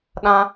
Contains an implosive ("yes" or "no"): yes